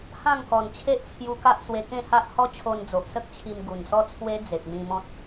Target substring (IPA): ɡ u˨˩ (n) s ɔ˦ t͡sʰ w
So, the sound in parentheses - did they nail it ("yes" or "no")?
yes